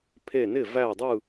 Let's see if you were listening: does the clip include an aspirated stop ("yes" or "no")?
yes